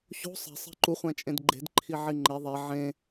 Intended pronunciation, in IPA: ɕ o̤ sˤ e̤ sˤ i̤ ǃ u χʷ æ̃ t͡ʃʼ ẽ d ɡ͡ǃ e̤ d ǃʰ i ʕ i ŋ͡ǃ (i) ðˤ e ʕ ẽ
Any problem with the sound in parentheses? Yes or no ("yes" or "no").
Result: yes